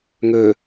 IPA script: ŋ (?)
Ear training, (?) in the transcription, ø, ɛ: ø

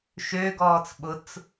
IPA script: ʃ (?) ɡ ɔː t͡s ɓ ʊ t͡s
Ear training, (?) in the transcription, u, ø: ø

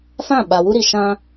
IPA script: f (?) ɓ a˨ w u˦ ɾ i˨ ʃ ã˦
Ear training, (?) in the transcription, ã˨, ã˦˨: ã˦˨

